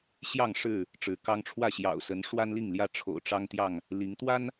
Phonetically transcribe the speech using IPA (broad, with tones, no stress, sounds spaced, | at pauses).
ɕ j ɑ˥˨ ŋ ʂ ɻ̩˥˨ | ʈ͡ʂ ɻ̩˨˦ k ɑ˦ ŋ ʈ͡ʂʰ w ä˥˨ ɕ j ɑ̰˨˩ ʊ̯ s ə˨˦ n ʂ w a˦ n l i˥˨ ŋ l j ä˥˨ ʈ͡ʂʰ o̰˨˩ ʊ̯ ʈ͡ʂ ɑ˦ ŋ t̪ j ɑ˥˨ ŋ | l i˨˦ ŋ t̪ w a˦ n